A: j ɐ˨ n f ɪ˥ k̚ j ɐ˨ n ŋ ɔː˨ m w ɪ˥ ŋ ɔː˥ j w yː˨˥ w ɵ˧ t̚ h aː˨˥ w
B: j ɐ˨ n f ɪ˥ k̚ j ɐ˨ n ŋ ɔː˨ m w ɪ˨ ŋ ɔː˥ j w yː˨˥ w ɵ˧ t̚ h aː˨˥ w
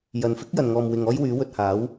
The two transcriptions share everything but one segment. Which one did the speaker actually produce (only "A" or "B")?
B